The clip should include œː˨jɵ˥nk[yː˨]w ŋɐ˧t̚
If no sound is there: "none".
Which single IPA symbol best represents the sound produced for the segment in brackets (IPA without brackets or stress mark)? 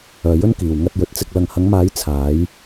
iː˨